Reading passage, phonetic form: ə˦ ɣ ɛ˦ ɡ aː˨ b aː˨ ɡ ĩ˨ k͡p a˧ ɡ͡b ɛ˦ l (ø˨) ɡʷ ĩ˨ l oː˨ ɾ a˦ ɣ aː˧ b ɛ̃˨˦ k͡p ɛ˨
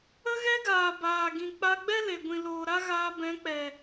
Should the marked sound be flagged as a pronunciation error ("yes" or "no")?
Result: yes